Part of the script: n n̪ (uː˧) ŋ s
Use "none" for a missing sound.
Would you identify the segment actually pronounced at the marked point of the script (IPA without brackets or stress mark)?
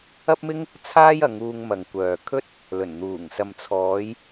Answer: uː˨˩